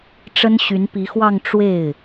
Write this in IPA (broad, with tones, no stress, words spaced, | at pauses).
ʈ͡ʂə˥n ɕy˧˥npi˧˥xwɑ˥˧ŋ ʈ͡ʂwe˥˩ɪ̯